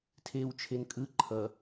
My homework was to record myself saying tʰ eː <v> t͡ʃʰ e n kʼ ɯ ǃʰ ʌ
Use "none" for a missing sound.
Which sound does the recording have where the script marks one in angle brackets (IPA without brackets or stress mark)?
w